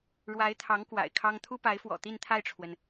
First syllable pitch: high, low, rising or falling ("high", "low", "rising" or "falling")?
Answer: rising